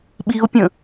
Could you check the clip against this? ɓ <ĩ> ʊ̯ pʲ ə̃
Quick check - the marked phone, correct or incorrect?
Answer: incorrect